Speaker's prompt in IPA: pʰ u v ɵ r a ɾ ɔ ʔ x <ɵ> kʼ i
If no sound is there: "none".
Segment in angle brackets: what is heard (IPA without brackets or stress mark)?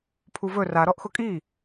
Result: ʊ